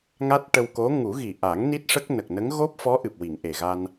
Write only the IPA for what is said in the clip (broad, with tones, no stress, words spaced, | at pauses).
ŋa˦˥t̚ ʈə˧wko˧˥ ŋu˨˩˦ɣi˨˩ʔa˨˩˦ŋ ni˦˥t̚ʂə˦˥k̚ nə˨˩k̚nə˧˥ŋ ɣo˦˥p̚fɔ˧˥ ʔɨ˨˩p̚wi˨˩˨ŋʔe˨˩ɣa˧n